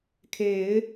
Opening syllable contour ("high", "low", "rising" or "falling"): low